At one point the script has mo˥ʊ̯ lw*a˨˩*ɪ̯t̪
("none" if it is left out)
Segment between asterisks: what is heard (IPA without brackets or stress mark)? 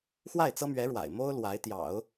a˧˥